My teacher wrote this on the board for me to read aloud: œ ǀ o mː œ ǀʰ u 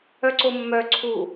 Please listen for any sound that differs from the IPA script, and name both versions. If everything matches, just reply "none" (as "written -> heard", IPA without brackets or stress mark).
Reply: none